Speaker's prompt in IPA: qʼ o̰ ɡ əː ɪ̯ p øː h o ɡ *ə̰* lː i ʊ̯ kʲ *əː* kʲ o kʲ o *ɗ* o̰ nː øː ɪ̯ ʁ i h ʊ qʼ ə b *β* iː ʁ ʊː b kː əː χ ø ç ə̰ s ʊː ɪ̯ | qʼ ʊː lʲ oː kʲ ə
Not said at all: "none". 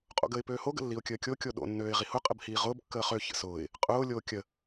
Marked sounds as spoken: ə̰, əː, ɗ, h

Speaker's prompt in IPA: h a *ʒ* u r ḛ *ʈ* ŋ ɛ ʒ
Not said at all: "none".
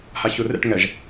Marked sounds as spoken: ç, ʈ

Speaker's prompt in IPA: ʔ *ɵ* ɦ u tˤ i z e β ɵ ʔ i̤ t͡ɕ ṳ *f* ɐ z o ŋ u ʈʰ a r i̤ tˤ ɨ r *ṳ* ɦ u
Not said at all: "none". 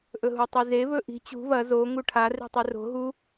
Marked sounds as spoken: ɵ, β, o̤

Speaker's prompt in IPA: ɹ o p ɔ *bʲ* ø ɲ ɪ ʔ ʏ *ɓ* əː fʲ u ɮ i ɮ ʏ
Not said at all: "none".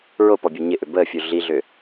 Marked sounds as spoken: bʲ, b

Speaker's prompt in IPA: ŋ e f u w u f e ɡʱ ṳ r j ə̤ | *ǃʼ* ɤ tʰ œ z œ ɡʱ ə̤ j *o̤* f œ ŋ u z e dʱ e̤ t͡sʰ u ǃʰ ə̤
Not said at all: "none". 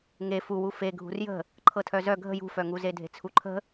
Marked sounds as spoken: ǃʰ, ṳ

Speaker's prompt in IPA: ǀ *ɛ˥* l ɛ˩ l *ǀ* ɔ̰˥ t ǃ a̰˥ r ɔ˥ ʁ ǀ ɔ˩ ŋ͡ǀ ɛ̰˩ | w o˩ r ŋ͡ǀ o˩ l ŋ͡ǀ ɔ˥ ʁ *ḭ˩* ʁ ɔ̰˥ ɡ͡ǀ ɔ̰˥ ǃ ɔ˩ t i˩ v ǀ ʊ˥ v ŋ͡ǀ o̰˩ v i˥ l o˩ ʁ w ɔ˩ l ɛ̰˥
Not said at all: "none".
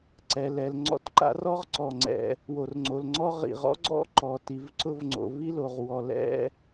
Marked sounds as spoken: ɛ˩, ŋ͡ǀ, ḭ˩

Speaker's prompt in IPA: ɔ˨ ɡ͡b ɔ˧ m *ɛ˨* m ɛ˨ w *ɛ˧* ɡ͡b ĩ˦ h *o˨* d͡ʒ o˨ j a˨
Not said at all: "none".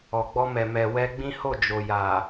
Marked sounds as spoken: ɛ˨, ɛ˧, o˦˨

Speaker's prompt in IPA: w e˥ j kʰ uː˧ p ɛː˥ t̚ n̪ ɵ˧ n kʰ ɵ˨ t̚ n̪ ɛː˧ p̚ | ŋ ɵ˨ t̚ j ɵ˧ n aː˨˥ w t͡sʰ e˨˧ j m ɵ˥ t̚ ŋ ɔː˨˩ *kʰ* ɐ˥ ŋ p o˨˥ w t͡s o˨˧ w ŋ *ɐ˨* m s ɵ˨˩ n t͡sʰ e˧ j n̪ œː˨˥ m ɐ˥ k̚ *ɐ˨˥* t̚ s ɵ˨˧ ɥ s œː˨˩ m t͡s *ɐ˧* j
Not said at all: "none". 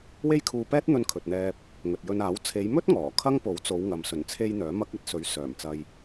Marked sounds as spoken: kʰ, ɐ˨, ɐ˧, ɐ˧

